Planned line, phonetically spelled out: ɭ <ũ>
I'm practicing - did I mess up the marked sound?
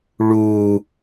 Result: yes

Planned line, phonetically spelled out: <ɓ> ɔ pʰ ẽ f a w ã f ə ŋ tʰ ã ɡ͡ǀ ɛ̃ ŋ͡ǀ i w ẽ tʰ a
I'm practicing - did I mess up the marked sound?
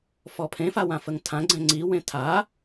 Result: yes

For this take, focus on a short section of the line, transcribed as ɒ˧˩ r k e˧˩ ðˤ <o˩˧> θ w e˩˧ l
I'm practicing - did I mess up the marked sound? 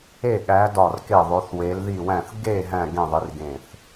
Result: no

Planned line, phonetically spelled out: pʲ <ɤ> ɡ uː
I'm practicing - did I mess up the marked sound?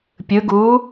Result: yes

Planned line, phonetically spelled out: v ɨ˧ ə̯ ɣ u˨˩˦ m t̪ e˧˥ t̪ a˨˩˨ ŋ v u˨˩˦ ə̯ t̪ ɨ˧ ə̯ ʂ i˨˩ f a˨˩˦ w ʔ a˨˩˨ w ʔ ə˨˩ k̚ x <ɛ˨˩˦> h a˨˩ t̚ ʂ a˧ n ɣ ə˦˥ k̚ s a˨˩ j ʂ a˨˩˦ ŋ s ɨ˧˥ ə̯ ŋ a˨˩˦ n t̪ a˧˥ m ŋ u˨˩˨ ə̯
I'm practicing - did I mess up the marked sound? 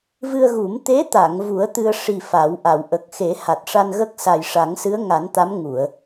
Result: yes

